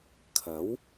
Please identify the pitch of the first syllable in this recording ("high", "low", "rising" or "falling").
rising